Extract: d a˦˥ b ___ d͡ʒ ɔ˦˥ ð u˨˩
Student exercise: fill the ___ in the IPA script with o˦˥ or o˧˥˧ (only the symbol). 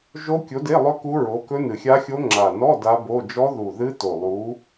o˧˥˧